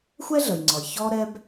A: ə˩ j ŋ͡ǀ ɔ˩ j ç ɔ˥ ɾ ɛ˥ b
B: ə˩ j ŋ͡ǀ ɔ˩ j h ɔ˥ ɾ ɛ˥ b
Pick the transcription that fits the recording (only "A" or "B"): A